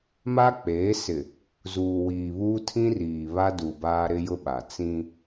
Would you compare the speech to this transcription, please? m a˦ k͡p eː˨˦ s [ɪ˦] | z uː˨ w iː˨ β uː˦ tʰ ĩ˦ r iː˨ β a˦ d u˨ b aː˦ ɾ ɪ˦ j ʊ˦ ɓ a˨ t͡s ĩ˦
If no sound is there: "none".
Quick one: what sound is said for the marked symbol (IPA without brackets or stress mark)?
ɪ˨